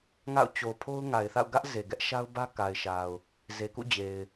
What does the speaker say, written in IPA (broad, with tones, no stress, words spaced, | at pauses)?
ŋa̰˦˨ʊ̯ t͡ɕo˨pʰo˦ʊ̯ ŋa˨ɪ̯θa̰˦˨ʊ̯ɡä˦ʔ ze˨ɡɛ˦ʔʃa˦ʊ̯bä˦ ka˨ɪ̯ʃa˨ʊ̯ | ze˨kṵ˦˨d͡ʑe˨ɪ̯